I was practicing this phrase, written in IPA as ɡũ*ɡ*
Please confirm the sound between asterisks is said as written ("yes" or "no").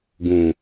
no